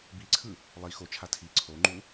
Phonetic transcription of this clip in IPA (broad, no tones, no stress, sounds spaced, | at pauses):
b i ǀʰ ɯ | lˠ i x o t͡ʃʰ a tʰ i ǀʰ o ŋ͡ǃ u